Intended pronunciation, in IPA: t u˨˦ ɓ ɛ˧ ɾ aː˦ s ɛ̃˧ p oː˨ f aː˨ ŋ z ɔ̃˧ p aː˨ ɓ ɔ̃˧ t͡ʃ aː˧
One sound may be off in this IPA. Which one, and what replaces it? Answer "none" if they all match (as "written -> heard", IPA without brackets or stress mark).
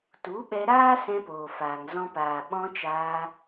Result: none